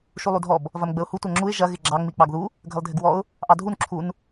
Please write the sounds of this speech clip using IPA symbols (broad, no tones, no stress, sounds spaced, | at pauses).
ʃ u lˠ u dʱ ɔ b | v ɐ m ɡ͡b ə ʊ̯ h u tʷ ɐ ŋ͡ǁ u ɪ̯ ʒ ɐ ɣ ɪ ɡ͡ǁ ɑ ŋ͡m i k͡p ɑ ɡ ð u | ɡʱ ə lˠ dʱ ɪ ɡ w ɔ ʊ̯ | ʔ ɑ dʱ u n ǁʰ u n